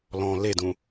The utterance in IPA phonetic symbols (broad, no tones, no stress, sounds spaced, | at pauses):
l ɔ̃ l e d ũ